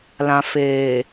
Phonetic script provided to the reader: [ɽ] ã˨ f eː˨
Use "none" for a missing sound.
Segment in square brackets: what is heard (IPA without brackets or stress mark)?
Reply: l